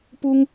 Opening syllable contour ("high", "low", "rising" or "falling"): high